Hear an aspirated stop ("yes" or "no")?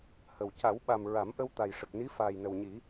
no